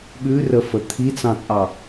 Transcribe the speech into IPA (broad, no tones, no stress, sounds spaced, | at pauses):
ɓ ʉ r ə f ə t̪ʰ i t͡s ɑ̃ t͡sʼ ɑ